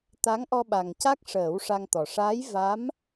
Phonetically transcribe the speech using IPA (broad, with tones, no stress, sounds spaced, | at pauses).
t̪ a˧˥ ŋ ʔ ɔ˧ ɓ a˨˩ ŋ c a˦˥ k̚ ʂ əː˨˩˦ w ʂ a˧ ŋ t̪ ɔ˨˩ ʂ aː˧˥ j v a˧˥ m